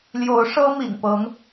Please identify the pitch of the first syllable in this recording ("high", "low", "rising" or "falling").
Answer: rising